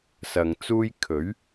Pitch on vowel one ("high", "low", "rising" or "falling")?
low